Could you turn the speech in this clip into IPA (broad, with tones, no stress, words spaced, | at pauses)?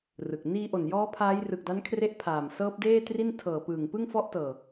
rɯ˨˩k̚ niː˧ʔo˨˩njɔː˦˥ pʰaː˦˥j rɯ˨˩k̚da˦˥nkʰre˦˥ʔ pʰaː˨˩m sɤː˦˥p̚deː˥˩tri˥˩n tʰɤː˨˩ pɯː˨˩ŋpɯ˥˩ŋ fɔ˦˥ʔtɤː˨˩